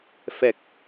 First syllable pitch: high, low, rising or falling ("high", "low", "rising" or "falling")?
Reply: low